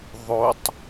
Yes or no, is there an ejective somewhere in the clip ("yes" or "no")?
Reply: no